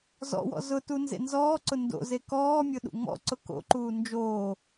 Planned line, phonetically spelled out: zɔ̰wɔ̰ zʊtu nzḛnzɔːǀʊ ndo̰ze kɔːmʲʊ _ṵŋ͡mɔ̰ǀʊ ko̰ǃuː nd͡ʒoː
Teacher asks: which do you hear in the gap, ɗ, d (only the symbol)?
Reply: ɗ